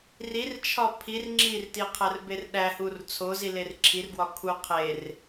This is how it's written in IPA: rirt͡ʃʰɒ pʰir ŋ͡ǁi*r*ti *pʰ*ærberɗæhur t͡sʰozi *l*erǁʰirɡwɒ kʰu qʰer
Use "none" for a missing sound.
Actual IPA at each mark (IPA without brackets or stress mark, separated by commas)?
r, qʰ, l